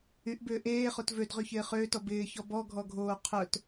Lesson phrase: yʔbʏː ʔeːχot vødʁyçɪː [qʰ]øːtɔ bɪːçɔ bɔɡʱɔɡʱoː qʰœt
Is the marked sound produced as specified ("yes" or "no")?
no